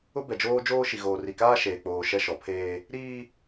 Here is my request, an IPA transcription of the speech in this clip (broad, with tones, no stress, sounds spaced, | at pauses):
ʊ˦ b ɛ˨ d͡ʒ oː˦ d͡ʒ oː˦ ʃ i˨ ɣ oː˨ r i˨ k aː˦ ʃ eː˨ k͡p oː˨ ʃ ɛ˦ ʃ ɔ˨ pʰ eː˦ | ɾ iː˦